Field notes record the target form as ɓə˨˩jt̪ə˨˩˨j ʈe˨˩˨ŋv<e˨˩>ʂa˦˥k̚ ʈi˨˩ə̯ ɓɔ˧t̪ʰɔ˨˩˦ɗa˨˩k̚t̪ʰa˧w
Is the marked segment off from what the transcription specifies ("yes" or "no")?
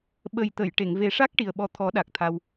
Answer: yes